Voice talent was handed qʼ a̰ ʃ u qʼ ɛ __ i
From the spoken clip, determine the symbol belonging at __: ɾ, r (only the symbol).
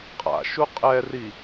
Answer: r